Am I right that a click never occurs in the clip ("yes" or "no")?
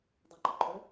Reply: no